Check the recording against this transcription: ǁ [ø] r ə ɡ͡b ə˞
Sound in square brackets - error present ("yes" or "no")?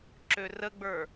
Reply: no